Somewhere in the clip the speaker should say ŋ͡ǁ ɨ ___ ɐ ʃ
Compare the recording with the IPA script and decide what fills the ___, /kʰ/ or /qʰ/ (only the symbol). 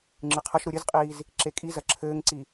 qʰ